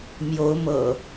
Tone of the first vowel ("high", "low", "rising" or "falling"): rising